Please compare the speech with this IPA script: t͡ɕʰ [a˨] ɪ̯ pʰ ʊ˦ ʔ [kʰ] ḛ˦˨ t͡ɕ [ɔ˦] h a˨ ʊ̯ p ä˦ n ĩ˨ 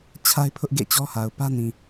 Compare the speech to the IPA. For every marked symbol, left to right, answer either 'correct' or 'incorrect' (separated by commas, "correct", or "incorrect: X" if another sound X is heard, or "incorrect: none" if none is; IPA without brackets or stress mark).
incorrect: a˦, incorrect: ɡ, correct